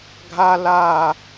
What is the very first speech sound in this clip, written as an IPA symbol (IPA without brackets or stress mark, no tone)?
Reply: ɡʱ